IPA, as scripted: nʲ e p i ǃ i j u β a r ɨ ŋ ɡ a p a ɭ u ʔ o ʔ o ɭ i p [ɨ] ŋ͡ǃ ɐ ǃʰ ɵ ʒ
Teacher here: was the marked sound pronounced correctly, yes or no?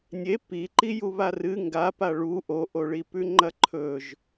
no